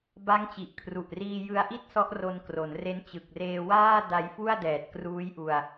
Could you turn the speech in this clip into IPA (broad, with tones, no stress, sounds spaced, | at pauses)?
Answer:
b a˦˥ ŋ t͡ɕ i˨˩ ʔ kʰ r u˨˩ ʔ r iː˧ j ɯ˧ a̯ ʔ i˥˩ t̚ s ɔ˦˥ ʔ r o˧ n k r o˩˦ n r e˦˥ n t͡ɕ ɯ˨˩ k̚ r eː˧ w aː˥˩ d a˧ j f u˥˩ a̯ d ɛː˨˩ t̚ k r uː˦˥ j ʔ u˧ a̯